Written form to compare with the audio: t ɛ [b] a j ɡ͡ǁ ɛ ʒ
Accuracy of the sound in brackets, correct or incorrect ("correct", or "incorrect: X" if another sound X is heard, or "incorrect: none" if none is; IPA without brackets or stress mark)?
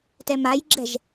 incorrect: m